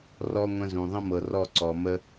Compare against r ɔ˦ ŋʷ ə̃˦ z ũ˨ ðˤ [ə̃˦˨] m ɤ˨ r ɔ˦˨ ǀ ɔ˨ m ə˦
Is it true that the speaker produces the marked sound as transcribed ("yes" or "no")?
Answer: no